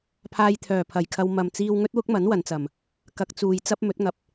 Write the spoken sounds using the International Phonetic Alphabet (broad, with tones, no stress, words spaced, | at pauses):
pʰaː˧jt̪ʰœː˨pʰɐ˨jkʰɐ˧w mɐ˨mt͡siː˧w ŋɵ˥t̚wʊ˥k̚mɐ˨˥n wɐ˨˧nt͡sɐ˨m | kɐ˧k̚t͡suː˧j t͡sɐ˥p̚mɵ˨˥t̚ŋɐ˧p̚